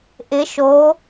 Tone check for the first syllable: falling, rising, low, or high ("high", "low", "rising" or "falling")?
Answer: rising